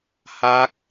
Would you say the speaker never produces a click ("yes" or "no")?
yes